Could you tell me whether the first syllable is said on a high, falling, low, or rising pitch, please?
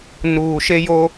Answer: low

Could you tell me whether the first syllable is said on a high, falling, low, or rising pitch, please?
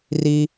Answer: high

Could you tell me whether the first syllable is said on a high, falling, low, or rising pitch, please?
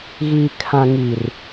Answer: low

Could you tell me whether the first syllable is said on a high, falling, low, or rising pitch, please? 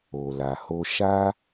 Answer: low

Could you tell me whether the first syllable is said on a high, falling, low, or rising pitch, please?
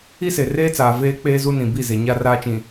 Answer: high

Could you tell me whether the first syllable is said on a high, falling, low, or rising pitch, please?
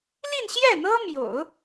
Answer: falling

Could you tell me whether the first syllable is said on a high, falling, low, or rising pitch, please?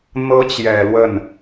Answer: rising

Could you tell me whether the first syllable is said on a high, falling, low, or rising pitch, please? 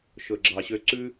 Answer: low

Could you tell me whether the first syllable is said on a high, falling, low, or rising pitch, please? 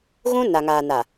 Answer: high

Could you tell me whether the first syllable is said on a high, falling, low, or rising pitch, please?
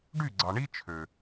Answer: falling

